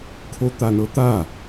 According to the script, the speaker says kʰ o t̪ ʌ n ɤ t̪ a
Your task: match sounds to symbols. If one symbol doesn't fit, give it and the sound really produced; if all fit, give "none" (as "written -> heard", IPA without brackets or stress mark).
ʌ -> a